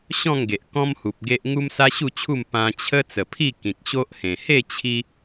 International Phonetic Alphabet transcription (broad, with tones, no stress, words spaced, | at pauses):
ɕɔ̃˥˧ŋɡe˨ʔ kɔ̃˦mhu˨p̚ ɡe˦ʔ ŋu˦msa˦ɕu˥˧t͡ɕʰu˥˧m pã˧t͡ɕʰə˦ t͡sə˨˩pʰi˥˧ kĩ˨k̚ɕo˦ʔhẽ˨˩ he˥˧ t͡ɕʰi˦